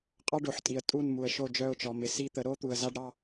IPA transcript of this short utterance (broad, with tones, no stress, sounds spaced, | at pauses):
qʼ ɑ˦ ɖ o˨ ħ tʼ i˨ ə̯ tʼ u˦˨ n m u˨ ə̯ ʃ o˦˨ d͡ʒ œ˦˨ ʊ̯ t͡ʃ ɔ˨ m ɪ˨ s i˦˨ t̪ ə˨˦ ɾ o˦ t̪ u˨ ə̯ z a˦ ɖ ɾ ɑ˦